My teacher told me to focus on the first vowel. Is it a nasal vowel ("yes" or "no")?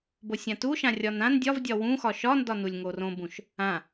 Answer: no